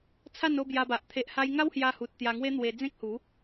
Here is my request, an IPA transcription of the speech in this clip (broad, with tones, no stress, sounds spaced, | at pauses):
t͡sʰ a˥˧ n o˥˧ b j a˧ b a˨ ʔ t̪ʰ e˨ ʔ h a˧ j ŋ a˦ w h j a˧ h u˨ t̚ t̪ j a˧ ŋ w e˦ n̪ w e˧ d͡z ẽ˦ k̚ h u˨˦